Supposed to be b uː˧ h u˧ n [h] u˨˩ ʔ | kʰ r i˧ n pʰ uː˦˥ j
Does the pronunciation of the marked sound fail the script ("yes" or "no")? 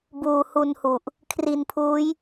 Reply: no